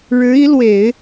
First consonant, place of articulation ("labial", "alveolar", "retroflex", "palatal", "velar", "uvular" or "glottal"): retroflex